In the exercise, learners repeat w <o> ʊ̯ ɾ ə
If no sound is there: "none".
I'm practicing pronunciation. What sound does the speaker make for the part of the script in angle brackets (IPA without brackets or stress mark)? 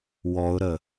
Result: ɔ